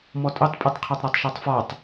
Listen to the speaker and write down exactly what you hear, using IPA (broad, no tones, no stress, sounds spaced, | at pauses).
m ɔ tʼ ɵ tˤ pʼ i tˤ qʰ a tˤ ɾ a tˤ ʃ ɔ tˤ f ɒ tˤ